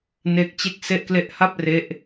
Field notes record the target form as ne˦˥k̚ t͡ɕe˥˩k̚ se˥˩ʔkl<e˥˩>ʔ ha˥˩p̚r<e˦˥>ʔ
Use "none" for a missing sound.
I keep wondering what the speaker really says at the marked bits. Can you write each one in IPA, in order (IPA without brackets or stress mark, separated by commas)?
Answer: e˥˩, e˦˥